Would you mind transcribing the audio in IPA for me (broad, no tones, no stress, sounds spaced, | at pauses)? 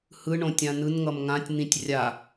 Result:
h ɯ ɳ õ tʲ ã n ɯ n ŋ ʌ m ŋ ã tʲ n̪ ĩ tʲ rʲ a